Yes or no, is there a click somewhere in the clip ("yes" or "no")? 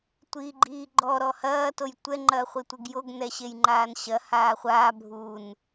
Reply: yes